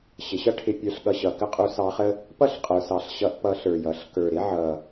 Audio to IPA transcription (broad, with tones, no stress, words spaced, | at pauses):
ɕɪ˩˧ɕʌ˥ʈʰɪ˧ pʲə˞˧ɬɠʌ˧ɕʌ˩˧ kə˥qʼu˧˥sɑ˧˥χə˥ | pʌ˥ɬqʼə˞˩˧sɑ˩˧ɬ ɕʌ˧˥ʔpʌ˧˥ɬə˞˨˩jʌ˩˧ɬ kə˞˨˩ɾɪ˥ ʕʌ˨˩